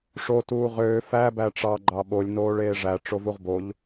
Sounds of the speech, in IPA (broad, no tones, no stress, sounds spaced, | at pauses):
ʂ o t uː ʁ øː f æ b æ ʈ͡ʂ ɑ ɡ͡ǃ ɑ ɓ o lʲ n oː ɭ eː ʐ æ ʈ͡ʂ o v u ʁ b o ʎ